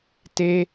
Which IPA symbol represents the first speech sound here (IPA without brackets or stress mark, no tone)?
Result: t